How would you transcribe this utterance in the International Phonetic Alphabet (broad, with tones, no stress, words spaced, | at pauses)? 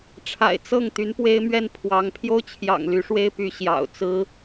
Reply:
ʈ͡ʂʰa̰˨˩ɪ̯ t͡sɤ˥˩ŋ t̪y˧˥npwe˥ɪ̯mɥɛ˥˩n pʰwɑ˧˥ŋ pʰjo˥ʊ̯t͡ɕʰjɑ̰˨˩ŋ ly˧˥ʂwe˥ɪ̯py˧˥ ɕjɑ̰˨˩ʊ̯t͡sɹ̩˥